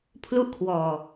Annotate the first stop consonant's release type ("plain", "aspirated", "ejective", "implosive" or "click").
aspirated